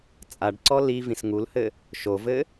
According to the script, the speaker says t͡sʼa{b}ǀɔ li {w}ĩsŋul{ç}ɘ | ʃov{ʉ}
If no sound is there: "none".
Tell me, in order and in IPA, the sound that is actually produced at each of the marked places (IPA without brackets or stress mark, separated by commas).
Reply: ɖ, v, h, ɘ